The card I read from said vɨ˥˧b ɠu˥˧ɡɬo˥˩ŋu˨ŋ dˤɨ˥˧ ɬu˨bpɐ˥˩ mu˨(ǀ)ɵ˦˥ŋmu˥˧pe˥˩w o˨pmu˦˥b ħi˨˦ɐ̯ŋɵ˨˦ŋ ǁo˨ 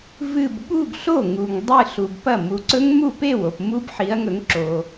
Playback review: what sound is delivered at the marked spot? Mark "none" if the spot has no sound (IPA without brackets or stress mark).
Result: ǀ